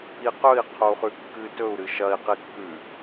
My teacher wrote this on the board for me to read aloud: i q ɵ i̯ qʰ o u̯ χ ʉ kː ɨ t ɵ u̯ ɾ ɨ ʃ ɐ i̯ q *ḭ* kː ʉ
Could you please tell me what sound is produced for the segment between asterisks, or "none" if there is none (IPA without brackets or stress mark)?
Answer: i